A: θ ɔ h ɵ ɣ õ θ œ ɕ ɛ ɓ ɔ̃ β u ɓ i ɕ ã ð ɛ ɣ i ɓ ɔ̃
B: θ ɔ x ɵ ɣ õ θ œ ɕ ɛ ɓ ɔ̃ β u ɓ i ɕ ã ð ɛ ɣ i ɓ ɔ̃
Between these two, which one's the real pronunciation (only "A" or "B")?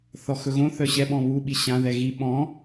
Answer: B